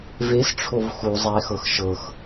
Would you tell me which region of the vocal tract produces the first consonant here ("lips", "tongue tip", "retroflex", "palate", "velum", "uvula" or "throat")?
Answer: lips